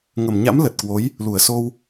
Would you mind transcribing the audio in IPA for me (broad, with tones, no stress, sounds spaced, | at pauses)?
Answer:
ŋ ə˧˩ m ɲ a̰˧˥ m l ə˨˩ t̚ k w o˨˦ j | l u˧˩ ə̯ s o˧ w